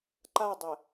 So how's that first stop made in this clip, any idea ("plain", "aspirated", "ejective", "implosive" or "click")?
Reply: click